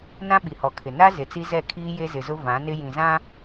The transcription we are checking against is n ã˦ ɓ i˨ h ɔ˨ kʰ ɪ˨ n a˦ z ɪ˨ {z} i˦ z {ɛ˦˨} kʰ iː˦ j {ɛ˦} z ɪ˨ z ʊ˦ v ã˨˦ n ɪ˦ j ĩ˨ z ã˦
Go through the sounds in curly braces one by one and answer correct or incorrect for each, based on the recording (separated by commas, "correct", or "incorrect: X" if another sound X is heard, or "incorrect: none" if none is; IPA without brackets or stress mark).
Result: incorrect: t͡s, correct, incorrect: e˦